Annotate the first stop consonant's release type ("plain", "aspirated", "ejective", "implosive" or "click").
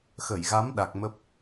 implosive